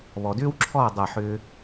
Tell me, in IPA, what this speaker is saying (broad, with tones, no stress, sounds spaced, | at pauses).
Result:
β ɔ˨ d ʏː˦ w ǁʰ ɔː˦˨ dˤ ɐ˦˨ ħ ʏː˦